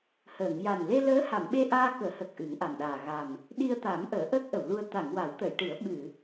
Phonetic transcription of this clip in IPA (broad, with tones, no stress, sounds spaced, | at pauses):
h əː˨˩˨ ŋ j a˨˩ n l e˧ l əː˧˥ h a˨˩˨ m ɓ e˧ ʔ aː˧ k əː˨˩˦ h ə˨˩ k̚ ʔ ɨ˨˩˦ ŋ ʔ a˨˩ m ɗ aː˨˩ ɣ a˨˩ m | ɗ i˧ ə̯ t̪ a˨˩˦ m ʔ əː˨˩˦ ʔ əː˦˥ k̚ ʔ ə˨˩˨ w l u˧ ə̯ t̪ a˨˩˨ ŋ w a˨˩˦ w t̪ ə˨˩˨ j ʈ ɨ˨˩˦ ə̯ ɓ ɨ˨˩˨